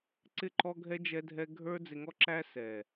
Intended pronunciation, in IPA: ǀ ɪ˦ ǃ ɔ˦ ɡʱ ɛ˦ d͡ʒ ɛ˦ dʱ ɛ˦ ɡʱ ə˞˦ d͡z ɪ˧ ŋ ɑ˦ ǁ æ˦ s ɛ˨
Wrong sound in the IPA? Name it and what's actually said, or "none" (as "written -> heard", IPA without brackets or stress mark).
ɑ˦ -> ɔ˦